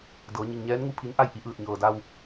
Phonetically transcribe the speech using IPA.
d ɤː˩˧ ɲ i˩ ŋ ɲ ɛː˧˥ n ŋ u˥˨ pʰ i˧˥ n ʔ a˥˨ j ʔ i˧ ʔ ɯː˧˩ t̚ ɲ ɤː˩ d a˧ w

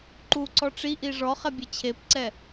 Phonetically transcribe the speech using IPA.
ǃ u ǀ ɔ ʈ͡ʂ i ʔ i ʐ ɔ χ ɛ bʲ ɛ t͡ɕʰ e p ǀ ɛ

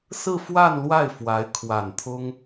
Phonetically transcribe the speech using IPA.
s ɹ̩˥˧ f w a˥˧ n l w a˥˩ ɪ̯ f w a˧˥ ɪ̯ kʰ w a˨˩ n t̪ʰ ʊ˥ ŋ

